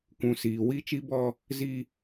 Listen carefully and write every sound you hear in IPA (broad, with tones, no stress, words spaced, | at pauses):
kʷũ˨siː˨ wi˦ t͡ʃi˦bɔ˦ | zi˦